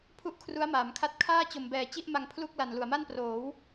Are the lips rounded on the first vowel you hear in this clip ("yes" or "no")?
yes